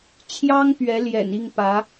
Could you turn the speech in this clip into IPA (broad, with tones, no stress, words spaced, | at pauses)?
t͡ɕʰjɑ˥ŋ pɥɛ˧˥ljɛ̰˨˩n i˥˩ŋpä˧˥